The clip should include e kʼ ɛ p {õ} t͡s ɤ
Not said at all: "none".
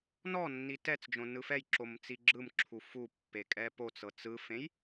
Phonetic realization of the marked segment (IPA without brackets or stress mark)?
o